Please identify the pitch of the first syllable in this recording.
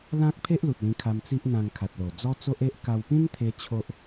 high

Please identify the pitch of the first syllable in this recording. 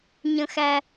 low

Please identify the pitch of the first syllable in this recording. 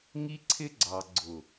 high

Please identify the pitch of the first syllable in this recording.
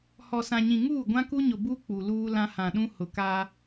low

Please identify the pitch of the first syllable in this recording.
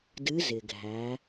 rising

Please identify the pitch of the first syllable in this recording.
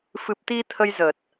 low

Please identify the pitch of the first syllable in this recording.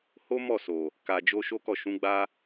high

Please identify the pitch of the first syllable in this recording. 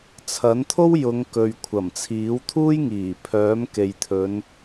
rising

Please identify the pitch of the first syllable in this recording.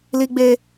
high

